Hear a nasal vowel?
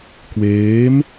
no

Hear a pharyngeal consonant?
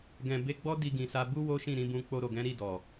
no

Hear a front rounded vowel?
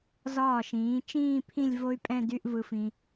yes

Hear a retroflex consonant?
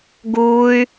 no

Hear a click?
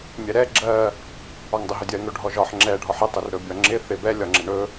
yes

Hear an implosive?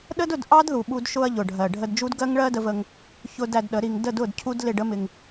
yes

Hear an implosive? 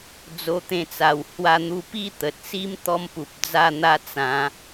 no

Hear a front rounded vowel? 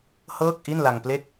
no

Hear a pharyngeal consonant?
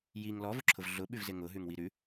no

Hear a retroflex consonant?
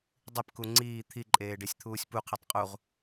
yes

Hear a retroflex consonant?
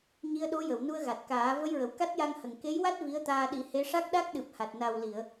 yes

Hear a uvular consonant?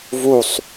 no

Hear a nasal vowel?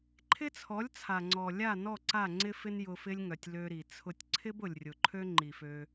no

